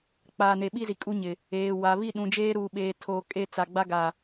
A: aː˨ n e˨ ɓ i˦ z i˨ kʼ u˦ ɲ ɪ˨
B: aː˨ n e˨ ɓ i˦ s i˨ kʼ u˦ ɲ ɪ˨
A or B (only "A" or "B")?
A